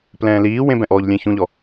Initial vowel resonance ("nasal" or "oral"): nasal